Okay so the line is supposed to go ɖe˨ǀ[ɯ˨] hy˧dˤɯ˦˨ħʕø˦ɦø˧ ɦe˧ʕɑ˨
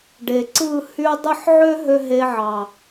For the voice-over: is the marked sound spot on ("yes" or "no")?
no